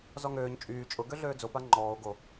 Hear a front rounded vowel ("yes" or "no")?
yes